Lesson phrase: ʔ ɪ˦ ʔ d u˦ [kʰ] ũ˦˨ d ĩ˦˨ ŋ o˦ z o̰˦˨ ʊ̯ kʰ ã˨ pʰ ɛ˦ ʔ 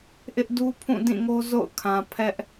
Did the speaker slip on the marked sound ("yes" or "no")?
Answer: yes